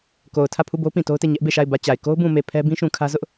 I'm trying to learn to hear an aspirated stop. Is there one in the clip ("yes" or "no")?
yes